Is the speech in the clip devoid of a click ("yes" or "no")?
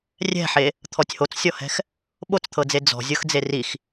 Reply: yes